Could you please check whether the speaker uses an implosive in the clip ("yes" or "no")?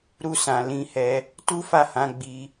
no